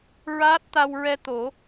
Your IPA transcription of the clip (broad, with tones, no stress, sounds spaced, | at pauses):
ɹ aː˦˥ t̚ t̪ a˧ w ɹ ɛ˧ t̪ o˨˩˦